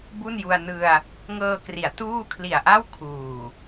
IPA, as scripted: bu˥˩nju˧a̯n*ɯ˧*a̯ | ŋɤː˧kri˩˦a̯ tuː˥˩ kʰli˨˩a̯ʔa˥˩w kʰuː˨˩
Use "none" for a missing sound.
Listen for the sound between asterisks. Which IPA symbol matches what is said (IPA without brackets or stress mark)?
ɯ˧